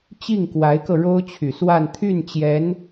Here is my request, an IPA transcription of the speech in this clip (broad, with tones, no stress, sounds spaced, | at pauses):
t͡ɕ i˥˩ ŋ k w a˧˥ ɪ̯ k ɤ˧ ɻ o˥ ʊ̯ t͡ɕʰ y˨˩ s w a˥˧ n t̪ʰ y˥˩ n t͡ɕ j ɛ˧˥ n